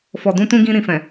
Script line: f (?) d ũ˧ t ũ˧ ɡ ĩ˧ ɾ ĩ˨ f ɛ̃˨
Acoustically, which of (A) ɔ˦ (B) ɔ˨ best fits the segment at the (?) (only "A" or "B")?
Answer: B